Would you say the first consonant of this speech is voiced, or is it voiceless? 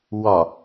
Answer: voiced